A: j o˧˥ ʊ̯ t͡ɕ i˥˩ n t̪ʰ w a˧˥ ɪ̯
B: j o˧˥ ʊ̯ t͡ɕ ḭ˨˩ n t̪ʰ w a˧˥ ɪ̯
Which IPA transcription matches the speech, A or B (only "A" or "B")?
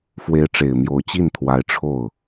A